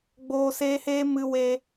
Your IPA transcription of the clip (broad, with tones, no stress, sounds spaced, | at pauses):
ɡ͡b oː˧ s eː˧ h eː˧ m ɨ˧ w eː˧